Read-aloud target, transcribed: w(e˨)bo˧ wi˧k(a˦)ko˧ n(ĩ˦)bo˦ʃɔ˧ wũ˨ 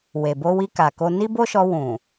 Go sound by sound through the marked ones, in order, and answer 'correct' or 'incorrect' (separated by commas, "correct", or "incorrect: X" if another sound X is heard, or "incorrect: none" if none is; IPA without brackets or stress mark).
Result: correct, incorrect: a˨, incorrect: i˦